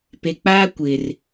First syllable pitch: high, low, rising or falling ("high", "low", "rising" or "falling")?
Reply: low